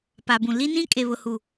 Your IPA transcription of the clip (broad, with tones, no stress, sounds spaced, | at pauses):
p a˨ b ũ˨ l i˦ n ĩ˦ kʼ e˨ β ʊ˨ h u˨